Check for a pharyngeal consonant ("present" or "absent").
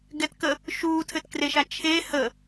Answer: absent